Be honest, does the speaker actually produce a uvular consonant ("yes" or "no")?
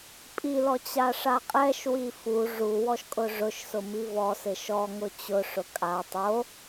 yes